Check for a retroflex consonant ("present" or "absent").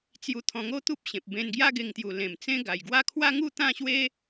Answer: absent